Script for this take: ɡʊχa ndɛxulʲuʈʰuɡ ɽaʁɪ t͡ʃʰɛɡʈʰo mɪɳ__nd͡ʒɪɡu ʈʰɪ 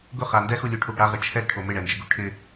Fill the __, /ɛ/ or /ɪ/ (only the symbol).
ɛ